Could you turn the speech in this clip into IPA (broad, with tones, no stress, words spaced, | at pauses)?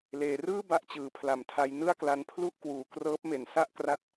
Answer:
leː˩˦rɯː˥˩ ba˥˩ʔt͡ɕɯː˨˩pʰla˨˩mtʰa˧j nɯ˥˩a̯kla˧n pʰlu˥˩ʔkwuː˩˦krɤː˦˥p̚me˩˦n sa˥˩ʔkra˦˥t̚